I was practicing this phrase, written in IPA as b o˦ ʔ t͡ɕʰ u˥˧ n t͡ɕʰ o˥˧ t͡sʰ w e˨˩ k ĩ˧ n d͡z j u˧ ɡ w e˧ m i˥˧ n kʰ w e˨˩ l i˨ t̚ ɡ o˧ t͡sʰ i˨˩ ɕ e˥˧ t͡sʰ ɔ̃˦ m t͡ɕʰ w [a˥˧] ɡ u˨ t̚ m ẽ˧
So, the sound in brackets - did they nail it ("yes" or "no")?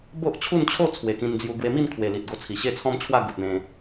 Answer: yes